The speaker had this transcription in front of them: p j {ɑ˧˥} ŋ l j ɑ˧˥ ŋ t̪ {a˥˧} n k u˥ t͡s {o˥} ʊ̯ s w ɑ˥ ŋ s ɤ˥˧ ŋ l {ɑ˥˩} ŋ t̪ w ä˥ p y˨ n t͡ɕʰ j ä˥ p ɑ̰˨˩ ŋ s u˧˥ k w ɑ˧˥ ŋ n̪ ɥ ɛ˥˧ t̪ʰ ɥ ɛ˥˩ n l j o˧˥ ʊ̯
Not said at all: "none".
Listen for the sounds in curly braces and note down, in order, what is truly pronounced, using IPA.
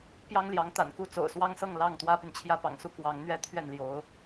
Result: ɑ˥, a̰˨˩, o̰˨˩, ɑ˥˩

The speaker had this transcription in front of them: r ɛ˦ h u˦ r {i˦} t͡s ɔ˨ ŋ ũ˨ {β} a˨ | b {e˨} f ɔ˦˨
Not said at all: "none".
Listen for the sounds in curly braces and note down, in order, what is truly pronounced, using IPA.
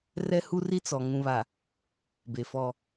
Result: i˦, β, e˨

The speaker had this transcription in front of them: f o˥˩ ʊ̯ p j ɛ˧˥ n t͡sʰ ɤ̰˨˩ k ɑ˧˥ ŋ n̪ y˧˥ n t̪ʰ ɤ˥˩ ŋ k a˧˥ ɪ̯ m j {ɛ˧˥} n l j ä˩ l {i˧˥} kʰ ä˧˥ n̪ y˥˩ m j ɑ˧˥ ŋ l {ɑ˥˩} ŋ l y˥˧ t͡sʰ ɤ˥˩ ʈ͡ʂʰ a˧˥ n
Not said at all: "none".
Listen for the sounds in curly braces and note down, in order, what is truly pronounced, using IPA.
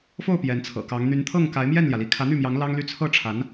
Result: ɛ˥˩, i˧˥, ɑ˥

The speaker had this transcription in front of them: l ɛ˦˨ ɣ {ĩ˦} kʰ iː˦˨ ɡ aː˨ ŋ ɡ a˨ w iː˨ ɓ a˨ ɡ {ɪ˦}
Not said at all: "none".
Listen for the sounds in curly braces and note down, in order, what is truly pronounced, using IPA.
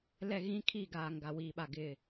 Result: ĩ˦, ɪ˦˨

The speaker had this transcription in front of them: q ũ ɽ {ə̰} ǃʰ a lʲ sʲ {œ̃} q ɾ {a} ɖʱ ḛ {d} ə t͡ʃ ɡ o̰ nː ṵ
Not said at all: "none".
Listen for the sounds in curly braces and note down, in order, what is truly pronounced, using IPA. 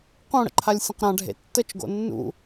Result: ə̰, ə̃, ã, tː

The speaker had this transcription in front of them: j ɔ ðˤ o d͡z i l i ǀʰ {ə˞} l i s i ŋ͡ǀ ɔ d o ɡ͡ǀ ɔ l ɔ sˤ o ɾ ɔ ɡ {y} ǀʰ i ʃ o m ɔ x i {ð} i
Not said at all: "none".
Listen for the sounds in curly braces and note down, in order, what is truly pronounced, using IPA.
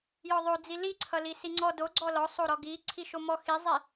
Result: ʌ, i, zˤ

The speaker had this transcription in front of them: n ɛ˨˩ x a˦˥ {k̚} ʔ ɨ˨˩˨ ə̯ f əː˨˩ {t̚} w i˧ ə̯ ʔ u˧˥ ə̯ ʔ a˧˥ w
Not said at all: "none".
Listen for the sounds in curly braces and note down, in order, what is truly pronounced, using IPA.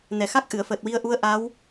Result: k̚, t̚

